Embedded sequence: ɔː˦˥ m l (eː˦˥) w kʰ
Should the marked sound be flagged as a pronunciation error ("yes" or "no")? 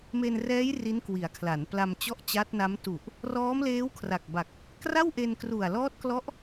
no